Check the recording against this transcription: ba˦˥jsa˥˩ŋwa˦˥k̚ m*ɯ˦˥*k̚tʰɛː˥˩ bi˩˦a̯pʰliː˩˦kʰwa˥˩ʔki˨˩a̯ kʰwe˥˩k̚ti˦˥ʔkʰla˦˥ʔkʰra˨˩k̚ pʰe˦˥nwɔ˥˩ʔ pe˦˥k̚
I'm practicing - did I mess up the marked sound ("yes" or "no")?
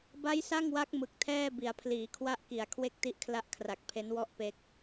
yes